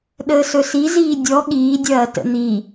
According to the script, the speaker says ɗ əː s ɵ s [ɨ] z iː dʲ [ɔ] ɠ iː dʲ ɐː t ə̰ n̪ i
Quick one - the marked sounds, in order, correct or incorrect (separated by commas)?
incorrect, correct